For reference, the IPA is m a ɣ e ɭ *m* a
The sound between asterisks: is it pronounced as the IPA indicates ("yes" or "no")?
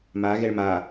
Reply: yes